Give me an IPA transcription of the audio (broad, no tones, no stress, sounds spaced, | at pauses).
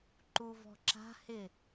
ǃ u v ɔ̤ ǁ a̤ h ɪ